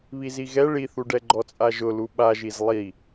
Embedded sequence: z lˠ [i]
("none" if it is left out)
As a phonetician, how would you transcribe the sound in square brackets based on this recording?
i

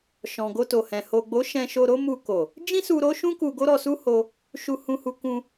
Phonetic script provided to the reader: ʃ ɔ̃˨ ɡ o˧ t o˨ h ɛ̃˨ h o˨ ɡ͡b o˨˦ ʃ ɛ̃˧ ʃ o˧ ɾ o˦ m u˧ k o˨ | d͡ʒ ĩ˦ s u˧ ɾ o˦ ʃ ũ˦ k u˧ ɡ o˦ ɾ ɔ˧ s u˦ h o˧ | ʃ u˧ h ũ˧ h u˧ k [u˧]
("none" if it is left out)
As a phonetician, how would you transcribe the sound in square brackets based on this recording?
ũ˧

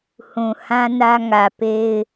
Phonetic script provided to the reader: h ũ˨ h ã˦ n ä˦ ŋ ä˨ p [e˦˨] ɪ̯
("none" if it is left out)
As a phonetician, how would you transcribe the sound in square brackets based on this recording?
e˦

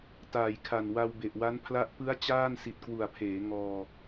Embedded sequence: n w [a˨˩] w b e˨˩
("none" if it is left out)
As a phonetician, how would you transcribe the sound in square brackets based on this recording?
a˧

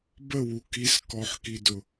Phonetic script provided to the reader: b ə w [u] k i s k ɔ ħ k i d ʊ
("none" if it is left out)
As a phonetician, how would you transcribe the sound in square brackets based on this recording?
u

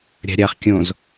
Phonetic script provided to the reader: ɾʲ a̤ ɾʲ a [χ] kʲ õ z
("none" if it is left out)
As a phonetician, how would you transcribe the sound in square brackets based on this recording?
χ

